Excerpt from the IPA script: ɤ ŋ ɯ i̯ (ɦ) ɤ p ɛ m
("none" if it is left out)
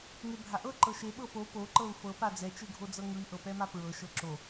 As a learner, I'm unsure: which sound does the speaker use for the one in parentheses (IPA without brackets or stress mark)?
ʔ